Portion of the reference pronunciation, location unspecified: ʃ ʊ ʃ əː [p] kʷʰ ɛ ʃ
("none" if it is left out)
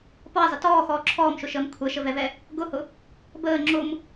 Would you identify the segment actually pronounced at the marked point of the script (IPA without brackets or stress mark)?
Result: m